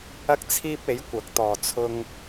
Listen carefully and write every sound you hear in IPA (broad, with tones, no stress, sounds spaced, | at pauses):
ɐ˥ k̚ t͡sʰ iː˥ p̚ e˨˥ j kʷ ɐ˨˥ k̚ t̪ ɔː˨ t͡sʰ ʊ˧ ŋ